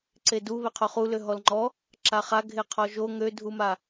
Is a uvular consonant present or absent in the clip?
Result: present